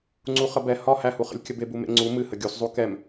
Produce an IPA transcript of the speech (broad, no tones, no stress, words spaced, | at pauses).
ŋ͡ǀuχəbɛ hɒ hæhuχə̰lʲkʲəb ebumḛŋ͡ǀu mɨhə ɡʲuszˤu kɛm